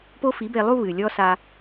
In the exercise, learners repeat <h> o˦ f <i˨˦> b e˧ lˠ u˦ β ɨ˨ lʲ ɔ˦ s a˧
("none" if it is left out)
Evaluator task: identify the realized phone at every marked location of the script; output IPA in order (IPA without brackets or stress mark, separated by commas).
p, i˨˦